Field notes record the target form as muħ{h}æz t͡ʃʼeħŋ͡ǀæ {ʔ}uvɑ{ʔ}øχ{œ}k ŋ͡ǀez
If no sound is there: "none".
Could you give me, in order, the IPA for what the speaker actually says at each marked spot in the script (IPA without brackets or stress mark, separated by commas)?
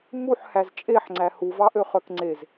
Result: h, h, ʔ, œ